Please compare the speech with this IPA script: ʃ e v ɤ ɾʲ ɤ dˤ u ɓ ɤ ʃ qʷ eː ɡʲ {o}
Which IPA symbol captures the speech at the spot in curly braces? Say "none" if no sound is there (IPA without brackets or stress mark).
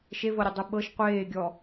ɔ